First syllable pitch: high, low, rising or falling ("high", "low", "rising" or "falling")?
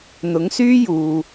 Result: rising